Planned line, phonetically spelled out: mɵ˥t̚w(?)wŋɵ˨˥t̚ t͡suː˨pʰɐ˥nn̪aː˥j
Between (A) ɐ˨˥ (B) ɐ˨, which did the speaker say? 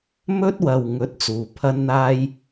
B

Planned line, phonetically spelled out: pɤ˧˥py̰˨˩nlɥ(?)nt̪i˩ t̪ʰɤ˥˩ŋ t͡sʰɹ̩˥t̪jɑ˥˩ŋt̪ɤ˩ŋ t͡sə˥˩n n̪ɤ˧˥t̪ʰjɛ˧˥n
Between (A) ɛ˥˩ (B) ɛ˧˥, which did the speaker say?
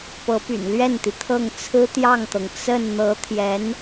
A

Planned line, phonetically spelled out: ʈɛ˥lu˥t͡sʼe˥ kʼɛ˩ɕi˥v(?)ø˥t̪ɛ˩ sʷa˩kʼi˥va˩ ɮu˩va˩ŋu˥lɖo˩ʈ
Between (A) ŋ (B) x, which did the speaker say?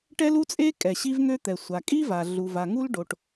A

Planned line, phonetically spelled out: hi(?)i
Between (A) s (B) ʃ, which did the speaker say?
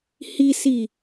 A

